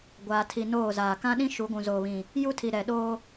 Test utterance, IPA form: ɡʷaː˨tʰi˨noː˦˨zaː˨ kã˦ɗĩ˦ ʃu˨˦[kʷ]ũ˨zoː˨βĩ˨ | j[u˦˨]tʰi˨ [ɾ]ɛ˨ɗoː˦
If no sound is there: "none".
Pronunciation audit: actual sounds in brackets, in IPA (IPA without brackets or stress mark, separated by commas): ɡʷ, u˦, ɾ